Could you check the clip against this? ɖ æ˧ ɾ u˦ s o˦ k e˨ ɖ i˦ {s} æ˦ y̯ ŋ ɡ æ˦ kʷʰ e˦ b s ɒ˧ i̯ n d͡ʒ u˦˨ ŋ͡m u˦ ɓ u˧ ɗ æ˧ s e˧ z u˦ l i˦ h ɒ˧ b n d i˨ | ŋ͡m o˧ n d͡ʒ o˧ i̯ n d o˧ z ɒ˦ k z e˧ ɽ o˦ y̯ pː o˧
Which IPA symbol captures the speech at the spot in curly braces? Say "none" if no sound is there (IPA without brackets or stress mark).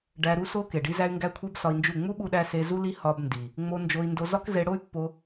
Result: z